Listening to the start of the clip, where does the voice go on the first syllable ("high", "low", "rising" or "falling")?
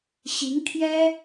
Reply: rising